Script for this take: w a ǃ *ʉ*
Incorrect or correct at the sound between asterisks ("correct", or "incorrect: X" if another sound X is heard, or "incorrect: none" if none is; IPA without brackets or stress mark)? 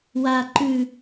correct